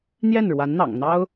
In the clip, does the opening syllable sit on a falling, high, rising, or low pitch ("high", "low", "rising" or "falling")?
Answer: falling